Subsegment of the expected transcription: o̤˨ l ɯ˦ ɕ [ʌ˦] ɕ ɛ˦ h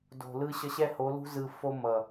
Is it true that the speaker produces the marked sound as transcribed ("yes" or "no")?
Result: yes